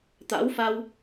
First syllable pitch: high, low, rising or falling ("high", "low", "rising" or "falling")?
rising